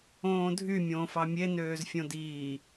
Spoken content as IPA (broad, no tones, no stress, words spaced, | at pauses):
õːdʱymʲõːf ɑmʲe nøːzfʲõdiː